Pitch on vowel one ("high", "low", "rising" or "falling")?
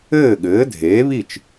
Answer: falling